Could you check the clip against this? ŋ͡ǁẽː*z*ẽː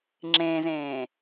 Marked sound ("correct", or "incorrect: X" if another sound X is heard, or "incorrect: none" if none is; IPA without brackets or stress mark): correct